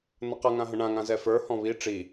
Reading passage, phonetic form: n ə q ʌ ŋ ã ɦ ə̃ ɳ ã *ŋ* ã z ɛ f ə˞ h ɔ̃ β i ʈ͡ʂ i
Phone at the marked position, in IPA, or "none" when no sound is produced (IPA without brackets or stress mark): ŋ